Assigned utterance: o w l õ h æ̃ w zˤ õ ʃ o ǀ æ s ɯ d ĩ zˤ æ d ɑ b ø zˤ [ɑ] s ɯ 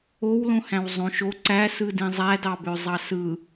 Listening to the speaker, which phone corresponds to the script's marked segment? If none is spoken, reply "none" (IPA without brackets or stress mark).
ɑ